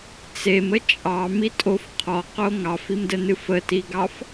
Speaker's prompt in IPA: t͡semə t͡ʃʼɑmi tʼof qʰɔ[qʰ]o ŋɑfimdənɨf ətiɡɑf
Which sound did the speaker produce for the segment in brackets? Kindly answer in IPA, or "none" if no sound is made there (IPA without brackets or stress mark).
q